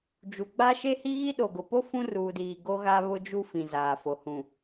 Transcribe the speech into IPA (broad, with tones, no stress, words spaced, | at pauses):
d͡ʒu˨ɡ͡ba˦ ʃe˦hi˦ɣi˦ ɗo˨ɡʊ˨po˦ fũ˦ruː˨diː˨ ɡo˦ɣa˦ βʊ˦d͡ʒu˦ fĩ˨zaː˨fo˨ hũ˨